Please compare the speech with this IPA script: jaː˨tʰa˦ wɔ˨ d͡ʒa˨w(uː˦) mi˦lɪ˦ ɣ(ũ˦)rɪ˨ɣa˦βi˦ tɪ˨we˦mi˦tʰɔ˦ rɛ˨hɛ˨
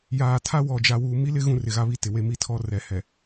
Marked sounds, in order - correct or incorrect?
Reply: incorrect: uː˨, correct

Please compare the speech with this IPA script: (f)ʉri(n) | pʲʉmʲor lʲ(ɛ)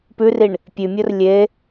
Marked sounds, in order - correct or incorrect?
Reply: incorrect: p, incorrect: ɳ, incorrect: e

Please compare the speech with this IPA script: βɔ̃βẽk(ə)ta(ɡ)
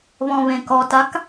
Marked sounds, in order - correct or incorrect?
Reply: incorrect: ɔ, incorrect: k

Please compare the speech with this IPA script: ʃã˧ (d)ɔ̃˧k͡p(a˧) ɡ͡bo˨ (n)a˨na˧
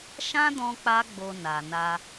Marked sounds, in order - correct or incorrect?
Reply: correct, correct, correct

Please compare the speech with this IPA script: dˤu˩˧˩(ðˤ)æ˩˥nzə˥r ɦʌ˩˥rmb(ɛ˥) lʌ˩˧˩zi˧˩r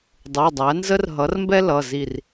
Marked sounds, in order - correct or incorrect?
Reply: incorrect: dˤ, correct

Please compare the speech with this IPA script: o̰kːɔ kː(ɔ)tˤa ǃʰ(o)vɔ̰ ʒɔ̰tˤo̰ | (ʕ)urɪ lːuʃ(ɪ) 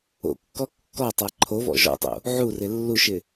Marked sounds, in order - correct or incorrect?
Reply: correct, correct, correct, correct

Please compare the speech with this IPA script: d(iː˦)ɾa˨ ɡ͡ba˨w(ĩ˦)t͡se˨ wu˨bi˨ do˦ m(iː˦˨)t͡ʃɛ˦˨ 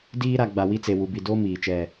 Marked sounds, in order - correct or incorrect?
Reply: correct, incorrect: i˦, incorrect: iː˨

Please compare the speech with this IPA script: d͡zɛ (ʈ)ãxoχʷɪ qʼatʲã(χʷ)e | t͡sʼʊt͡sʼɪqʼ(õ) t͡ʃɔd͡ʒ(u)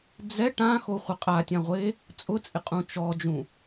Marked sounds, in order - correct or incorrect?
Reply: correct, incorrect: ʁʷ, incorrect: ũ, incorrect: ũ

